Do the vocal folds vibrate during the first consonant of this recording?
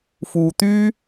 no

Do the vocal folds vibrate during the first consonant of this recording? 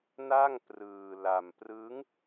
yes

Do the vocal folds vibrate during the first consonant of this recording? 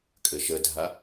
no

